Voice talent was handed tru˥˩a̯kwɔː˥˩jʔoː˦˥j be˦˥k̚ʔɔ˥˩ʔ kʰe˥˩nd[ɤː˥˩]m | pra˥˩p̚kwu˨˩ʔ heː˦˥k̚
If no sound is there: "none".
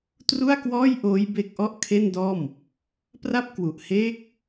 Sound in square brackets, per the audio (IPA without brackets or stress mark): ɔː˥˩